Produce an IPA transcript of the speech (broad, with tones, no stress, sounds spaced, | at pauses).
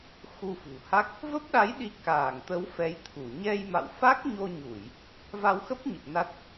x u˧ f ṳ˨˩ h a˦˥ k̚ | v ə˦˥ p̚ ɗ a˨˦ j ɗ i˨˦ k aː˧˩ ŋ t̪ ə˨˦ w f ɛ˨˦ j t̪ʰ u˧˩ ɲ ɛ˧ j m a̰˧˨ w f a˦˥ k̚ ɲ o˧ ɲ u˧˩˨ j | v a˧ w x ə˦˥ p̚ ɲ ə˨˩ p̚ n a˦˥ t̚